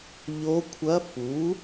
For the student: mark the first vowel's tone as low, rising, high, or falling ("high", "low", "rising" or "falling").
rising